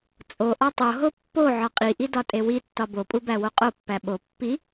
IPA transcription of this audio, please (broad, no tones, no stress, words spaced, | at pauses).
t͡sʼoʔɒ tˤoɦo pːo ʕɒqʼiʔi dɒtʼewitːɒ bopʼu bæwoqʼopːæ ɓo pːi